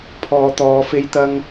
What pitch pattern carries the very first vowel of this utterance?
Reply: low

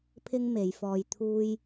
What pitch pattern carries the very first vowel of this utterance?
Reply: high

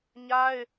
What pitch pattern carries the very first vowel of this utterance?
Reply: high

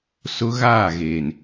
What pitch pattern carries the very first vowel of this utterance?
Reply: high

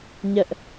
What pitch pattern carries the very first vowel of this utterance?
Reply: high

